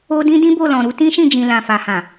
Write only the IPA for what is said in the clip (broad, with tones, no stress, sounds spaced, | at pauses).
o˧ d ĩ˦ d ĩ˦ b o˦˨ l ɔ̃˨ ɾ u˨˦ t ĩ˦ ʃ ĩ˦˨ d͡ʒ ĩ˨ l ã˨ f a˨ h ã˨